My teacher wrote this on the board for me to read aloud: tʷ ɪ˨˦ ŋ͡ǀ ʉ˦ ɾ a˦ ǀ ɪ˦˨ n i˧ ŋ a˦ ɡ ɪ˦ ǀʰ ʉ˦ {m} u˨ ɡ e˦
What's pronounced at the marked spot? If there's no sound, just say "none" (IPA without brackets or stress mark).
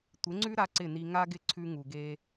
ŋ